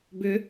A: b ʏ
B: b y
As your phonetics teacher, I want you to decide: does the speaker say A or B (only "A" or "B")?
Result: A